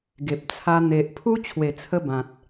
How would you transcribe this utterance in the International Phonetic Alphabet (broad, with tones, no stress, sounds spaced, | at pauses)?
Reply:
ɡ e˨ p̚ t͡sʰ a˧ n̪ e˨ ʔ pʰ u˦ t͡ɕʰ w e˨˩ t͡sʰ ə˧ b ã˨ t̚